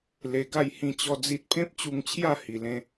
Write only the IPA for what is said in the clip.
l e˧ ɡ a˥˧ j h ĩ˥˧ t͡ɕ ɔ˦ d͡z i˦ t̚ pʰ ẽ˦ p̚ t͡ɕ u˧ ŋ t͡ɕʰ j a˥˧ h i˧ l ẽ˦

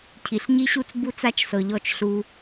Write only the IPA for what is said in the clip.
cʰ i˨ ɬ ɲ i˦ ɕ u˦ t͡s b u˦ t͡s a˦ t͡ʃ s ɤ˨ ʎ ɔ˦˨ t͡ʃ ɬ u˦

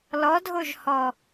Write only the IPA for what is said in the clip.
l ɔ dʱ o ʒ h ɔ

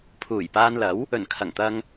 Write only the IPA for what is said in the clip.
pʰ uː˨˩ j p aː˧ n l ɐ˨˥ w | ɵ˨˩ n kʰ ɐ˨˩ ŋ t̪ ɐ˧ ŋ

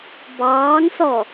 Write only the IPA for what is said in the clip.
b ɑː ŋ s ɔ

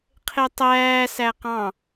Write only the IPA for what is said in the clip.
qʰ e tˤ æː s æ q ɑ̃

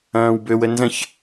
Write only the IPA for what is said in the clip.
ɐ̃ː w b ø w ə n z ɐ̃ ç

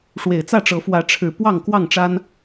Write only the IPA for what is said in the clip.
ʂ w e˨˩ ɪ̯ t͡s ä˥˨ ʈ͡ʂ ɤ˨˦ f w ä˨˦ ʈ͡ʂʰ ɻ̩˨˩ p w ɑ˥˨ ŋ k w ɑ˥˨ ŋ ʈ͡ʂ a˦ n

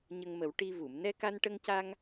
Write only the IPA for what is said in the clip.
ɲ ə˧ ŋ m ə˨˩˦ w ʈ i˧ v u˨˩˨ m n ɛ˧ k a˧ n ʈ ə˧ ŋ c a˧ ŋ

